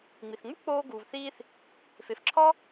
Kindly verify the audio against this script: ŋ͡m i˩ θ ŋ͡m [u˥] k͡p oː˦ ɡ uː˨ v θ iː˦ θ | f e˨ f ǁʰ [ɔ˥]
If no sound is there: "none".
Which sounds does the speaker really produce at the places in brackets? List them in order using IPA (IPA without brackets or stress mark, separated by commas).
u˥, ɔ˥